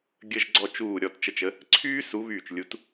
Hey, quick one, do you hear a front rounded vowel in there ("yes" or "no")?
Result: yes